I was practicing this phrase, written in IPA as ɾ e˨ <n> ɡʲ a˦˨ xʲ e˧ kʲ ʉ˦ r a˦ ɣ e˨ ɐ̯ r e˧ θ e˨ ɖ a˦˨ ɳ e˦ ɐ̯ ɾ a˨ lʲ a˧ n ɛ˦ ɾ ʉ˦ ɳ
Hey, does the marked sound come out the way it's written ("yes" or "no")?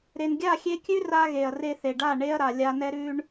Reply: yes